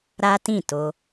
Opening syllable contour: high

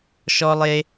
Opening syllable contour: high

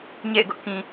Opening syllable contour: falling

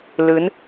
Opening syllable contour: rising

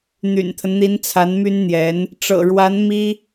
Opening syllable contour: low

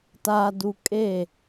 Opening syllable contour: low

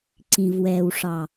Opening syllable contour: low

